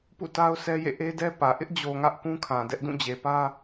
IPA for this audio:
pṵ˦˨ta˦ʊ̯sʰɛ˦jḛ˦˨ ʔe˦dɛ˦pä˨ ʔɪ˦ʔd͡ʑo˨ ŋä˦ʔ kũ˦kʰã˨ dɛ˦ʔ dũ˦˨d͡ʑe˨pä˦

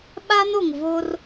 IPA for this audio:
ɓa˦no˨ŋ vo˦r

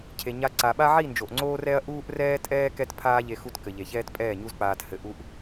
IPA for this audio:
cʰe˨ɲa˧ ǀa˨ɓa˦ʕi˦˨nd͡ʒo˨ʔ ŋ͡ǀoː˦rɛ˦ɐ̯ ʔuː˦ʔrɛː˦tʼɛː˦ kɛ˦tpʰaː˦ʎe˧ xu˦tkɘ˨ʎe˨ çɛː˦tpʼɛː˦˨ɲu˦zk͡paː˧t hɘ˧ʔu˦ʔ

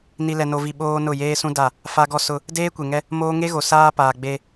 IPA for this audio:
ni˨lɛ˨no˨vi˨ ɓoː˦nʊ˦˨ jeː˦sũ˦ da˦˨ | fa˦ɡɔ˦sʊ˦ | deː˦kʷe˨ŋɛ˦ | moː˦ ŋe˦ɣo˨ saː˦paː˨ɡ͡be˦

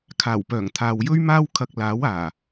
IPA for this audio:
kʰaː˨˩wpœː˨˩ŋt̪ʰaː˨w jɵ˥ɥmaː˥w kʰɐ˧k̚laː˨˥waː˨˩

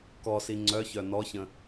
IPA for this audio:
kɔsi ŋ͡ǀœçœ nɔçə̃

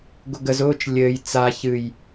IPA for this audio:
ɡʊɡəz ʊːt͡ʃ lʲɘːj t͡sa çɨj

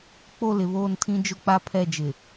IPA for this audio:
k͡po˦˨lɪ˨βoː˦˨ntʰĩ˦ d͡ʒʊ˦k͡pa˦pʰɛ˦˨d͡ʒɪ˨

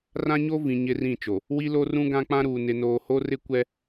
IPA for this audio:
rã˦ɲo˦vĩ˨ ɲɪ˦rĩ˦˨t͡ʃo˨ | wi˦lo˦rũ˦ ɡã˦k͡pã˦ɾuː˨ nɪ˨noː˨ho˦rɪ˦ kʷɛ˦

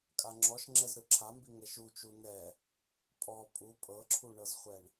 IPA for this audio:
kʼaŋ͡ǁɔʃŋ͡ǁɛz ɾɯǁʰambi ŋɛʃut͡ʃu nɛ | pʼɔ pʼu pʼɤǁʰuɳɤzχʷɛɳ

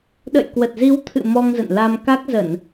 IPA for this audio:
ɗə̰˧˨jkwə˨˩t̚zi˨˦wt̪ʰɨ̰˧˨ mɔ˧ŋ zə̰˧˨nla˧mka˦˥k̚ zə˧˩˨n

